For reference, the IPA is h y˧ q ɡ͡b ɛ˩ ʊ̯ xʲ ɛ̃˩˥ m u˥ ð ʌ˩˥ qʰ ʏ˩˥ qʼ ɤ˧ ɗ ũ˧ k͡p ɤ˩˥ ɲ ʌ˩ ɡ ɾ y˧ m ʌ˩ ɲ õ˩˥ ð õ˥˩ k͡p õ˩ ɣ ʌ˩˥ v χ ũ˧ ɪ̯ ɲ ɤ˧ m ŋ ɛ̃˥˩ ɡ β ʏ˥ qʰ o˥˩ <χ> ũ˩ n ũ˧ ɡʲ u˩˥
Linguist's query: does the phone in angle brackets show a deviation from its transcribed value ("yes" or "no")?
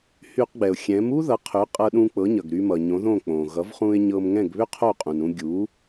yes